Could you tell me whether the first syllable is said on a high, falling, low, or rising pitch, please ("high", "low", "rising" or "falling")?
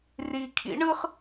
low